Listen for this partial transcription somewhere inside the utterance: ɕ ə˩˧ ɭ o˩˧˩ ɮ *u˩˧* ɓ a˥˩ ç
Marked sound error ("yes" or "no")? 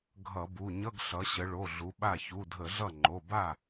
no